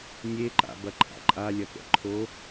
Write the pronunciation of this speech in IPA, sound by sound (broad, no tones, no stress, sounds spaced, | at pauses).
nʲ e ǃ a̰ b ɐ ǃʼ a̰ ǃʼ a lʲ ɐ k ɛ̰ ǃʰ o